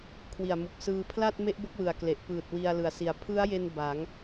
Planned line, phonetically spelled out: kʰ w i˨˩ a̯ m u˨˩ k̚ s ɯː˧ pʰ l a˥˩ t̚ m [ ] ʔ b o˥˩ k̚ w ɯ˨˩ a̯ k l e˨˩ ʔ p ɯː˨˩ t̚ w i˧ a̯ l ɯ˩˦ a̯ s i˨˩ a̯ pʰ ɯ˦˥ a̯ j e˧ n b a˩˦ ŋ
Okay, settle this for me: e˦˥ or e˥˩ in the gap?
e˦˥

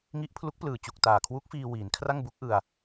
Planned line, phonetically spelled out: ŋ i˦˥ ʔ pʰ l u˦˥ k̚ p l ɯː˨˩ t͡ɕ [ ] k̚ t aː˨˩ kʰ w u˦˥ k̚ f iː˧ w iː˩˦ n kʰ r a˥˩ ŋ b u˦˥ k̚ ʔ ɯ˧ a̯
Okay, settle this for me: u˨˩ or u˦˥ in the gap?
u˨˩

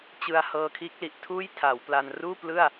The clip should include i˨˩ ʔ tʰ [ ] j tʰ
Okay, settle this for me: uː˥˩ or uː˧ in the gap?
uː˥˩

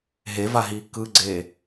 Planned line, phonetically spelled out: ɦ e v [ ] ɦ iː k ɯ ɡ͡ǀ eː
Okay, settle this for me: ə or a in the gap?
a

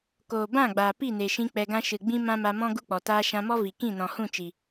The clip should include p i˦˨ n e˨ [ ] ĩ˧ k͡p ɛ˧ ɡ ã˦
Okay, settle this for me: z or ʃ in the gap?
ʃ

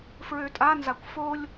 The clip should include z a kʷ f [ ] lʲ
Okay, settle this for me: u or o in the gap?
o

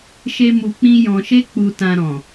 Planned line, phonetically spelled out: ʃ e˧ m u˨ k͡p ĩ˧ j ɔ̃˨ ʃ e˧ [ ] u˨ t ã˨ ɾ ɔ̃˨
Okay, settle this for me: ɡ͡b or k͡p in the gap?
k͡p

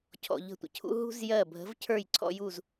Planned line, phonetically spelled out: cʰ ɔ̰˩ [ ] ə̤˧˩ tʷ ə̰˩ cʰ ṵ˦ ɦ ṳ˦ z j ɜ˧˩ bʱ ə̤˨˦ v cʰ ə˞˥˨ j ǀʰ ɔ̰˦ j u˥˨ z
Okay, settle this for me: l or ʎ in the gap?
ʎ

